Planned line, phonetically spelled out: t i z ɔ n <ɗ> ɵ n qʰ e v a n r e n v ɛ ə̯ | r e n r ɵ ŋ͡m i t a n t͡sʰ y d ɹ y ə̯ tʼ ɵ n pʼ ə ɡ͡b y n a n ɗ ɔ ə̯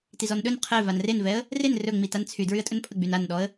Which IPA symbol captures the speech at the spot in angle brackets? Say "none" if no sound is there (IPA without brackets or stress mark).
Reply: ɗ